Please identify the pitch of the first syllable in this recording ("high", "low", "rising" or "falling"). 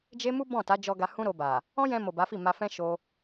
high